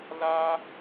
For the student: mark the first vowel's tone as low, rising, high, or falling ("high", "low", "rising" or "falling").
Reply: high